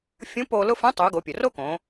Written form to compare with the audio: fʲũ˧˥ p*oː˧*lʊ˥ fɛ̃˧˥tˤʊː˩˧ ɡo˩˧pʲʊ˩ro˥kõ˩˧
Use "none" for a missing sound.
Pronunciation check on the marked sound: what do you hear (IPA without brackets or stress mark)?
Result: oː˧